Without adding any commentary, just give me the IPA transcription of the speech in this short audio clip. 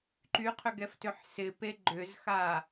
ǃ y qʰ ʏ ɡ ɛ f t ʏ ħ s ɪ p e ɡ͡ǃ ʏ z x a

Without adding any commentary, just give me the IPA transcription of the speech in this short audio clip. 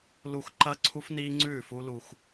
l u˨ x ǃ ɐː˦ ǀʰ u˦ f n iː˦ ŋ͡ǀ ʉː˦˨ f u˦ l u˦ x

